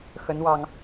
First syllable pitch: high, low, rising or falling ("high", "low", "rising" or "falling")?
rising